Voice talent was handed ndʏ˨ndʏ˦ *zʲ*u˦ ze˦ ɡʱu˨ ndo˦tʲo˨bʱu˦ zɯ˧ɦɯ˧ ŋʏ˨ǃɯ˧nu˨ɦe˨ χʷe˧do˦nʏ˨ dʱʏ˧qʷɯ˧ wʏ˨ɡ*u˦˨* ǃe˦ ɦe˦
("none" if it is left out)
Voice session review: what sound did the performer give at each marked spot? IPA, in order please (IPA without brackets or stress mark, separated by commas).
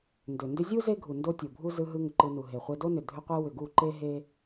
zʲ, u˦˨